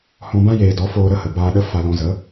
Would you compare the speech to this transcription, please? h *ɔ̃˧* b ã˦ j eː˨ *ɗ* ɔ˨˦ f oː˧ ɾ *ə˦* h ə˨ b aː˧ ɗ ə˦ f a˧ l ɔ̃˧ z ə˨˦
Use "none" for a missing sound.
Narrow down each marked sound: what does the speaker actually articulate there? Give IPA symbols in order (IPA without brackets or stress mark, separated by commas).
ɔ̃˧, d, ə˦